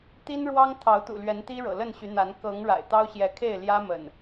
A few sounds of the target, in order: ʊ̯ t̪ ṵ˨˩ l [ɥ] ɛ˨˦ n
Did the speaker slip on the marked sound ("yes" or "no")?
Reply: no